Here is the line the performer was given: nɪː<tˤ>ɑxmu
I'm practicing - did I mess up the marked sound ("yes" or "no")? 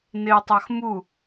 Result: no